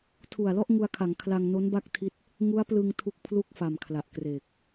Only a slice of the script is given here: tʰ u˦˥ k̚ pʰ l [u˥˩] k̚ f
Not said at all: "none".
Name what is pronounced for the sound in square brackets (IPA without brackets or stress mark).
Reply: u˥˩